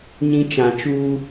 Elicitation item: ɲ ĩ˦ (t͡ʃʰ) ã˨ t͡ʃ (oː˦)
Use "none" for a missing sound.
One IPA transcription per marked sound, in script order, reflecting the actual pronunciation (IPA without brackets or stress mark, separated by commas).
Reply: t͡ʃ, uː˦